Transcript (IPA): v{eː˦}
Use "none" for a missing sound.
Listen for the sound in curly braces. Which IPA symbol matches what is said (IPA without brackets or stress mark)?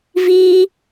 iː˦